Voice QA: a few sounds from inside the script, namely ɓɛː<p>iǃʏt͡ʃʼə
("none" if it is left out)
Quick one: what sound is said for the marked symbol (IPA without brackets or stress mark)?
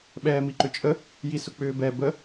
m